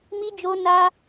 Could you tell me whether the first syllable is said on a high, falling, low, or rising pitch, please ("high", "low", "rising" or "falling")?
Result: high